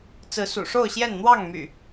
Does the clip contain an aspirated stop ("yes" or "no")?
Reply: no